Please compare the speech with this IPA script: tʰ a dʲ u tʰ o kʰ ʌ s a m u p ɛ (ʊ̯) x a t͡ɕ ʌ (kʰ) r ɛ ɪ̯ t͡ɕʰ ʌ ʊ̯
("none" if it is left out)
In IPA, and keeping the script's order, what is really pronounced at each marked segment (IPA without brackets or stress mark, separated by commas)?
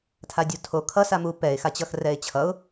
ɪ̯, x